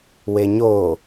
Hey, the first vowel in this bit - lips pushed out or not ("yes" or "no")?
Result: no